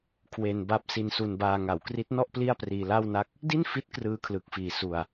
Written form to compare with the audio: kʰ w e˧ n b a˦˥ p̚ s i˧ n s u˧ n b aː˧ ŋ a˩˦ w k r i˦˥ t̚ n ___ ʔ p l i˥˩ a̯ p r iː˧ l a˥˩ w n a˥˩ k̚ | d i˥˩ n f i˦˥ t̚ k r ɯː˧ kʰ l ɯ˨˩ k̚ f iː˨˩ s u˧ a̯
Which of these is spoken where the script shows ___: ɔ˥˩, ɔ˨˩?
ɔ˥˩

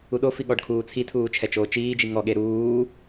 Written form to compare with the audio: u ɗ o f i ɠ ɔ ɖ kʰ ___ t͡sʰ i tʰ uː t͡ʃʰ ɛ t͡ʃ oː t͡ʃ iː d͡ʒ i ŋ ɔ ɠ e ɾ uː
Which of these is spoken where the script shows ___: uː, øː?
uː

